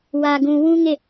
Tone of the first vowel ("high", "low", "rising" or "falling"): low